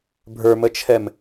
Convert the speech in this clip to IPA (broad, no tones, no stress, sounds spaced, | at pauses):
bʱ ə˞ m ə t͡ʃʰ ɛ m